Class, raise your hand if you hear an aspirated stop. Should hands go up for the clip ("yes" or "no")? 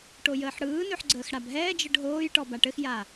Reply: no